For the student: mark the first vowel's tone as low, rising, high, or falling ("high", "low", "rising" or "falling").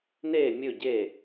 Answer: falling